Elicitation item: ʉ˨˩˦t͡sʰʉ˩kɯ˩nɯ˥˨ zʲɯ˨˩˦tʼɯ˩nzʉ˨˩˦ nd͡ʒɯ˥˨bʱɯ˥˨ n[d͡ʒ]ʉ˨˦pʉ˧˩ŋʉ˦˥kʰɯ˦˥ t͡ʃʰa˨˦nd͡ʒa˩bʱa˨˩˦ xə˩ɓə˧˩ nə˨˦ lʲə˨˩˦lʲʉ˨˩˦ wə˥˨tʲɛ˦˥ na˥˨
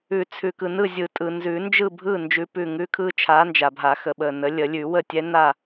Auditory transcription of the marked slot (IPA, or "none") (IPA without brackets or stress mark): d͡ʒ